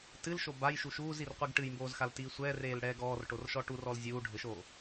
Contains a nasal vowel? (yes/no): no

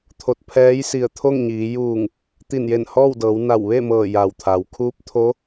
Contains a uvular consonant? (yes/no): no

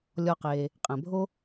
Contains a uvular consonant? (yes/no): yes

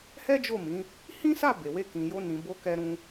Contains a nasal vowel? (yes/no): yes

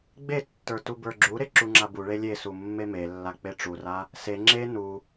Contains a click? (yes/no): yes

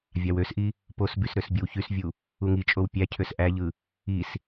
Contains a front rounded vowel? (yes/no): yes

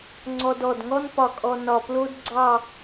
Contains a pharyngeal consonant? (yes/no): no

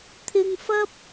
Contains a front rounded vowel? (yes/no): no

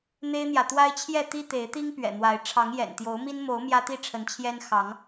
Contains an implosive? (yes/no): no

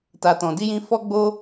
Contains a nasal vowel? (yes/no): yes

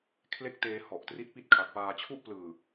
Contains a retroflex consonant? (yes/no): no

